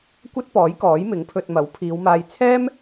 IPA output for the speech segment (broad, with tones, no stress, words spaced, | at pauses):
kʷɐ˥t̚pɔː˨˥jkɔː˨˥j mɪ˨˥ŋpʰɵ˧t̚mɐ˨˥w pʰiː˨˧wmaː˧jt͡sʰɛː˥m